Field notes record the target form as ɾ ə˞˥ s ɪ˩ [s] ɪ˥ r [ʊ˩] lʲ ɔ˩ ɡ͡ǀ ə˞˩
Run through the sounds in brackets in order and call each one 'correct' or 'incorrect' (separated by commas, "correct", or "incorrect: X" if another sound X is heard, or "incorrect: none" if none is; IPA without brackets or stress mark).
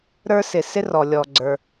correct, incorrect: ɔ˩